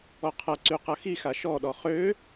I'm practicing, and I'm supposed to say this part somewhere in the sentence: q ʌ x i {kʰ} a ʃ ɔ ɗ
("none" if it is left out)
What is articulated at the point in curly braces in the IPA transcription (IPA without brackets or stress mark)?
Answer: x